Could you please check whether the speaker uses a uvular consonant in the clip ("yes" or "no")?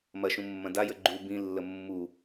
no